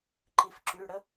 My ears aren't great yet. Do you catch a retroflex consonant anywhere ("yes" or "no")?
yes